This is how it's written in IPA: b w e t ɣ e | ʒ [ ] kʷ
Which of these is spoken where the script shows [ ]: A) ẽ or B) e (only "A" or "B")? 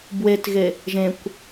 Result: A